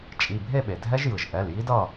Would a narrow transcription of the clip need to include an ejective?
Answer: yes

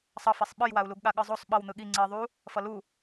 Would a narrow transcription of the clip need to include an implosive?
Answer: yes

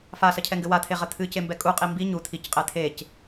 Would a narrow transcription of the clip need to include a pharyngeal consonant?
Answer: no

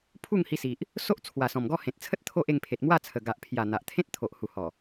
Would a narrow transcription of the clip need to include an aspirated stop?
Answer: yes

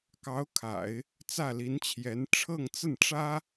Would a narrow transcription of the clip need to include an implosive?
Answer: no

